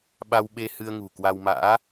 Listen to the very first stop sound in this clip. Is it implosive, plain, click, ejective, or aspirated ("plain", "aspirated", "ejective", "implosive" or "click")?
implosive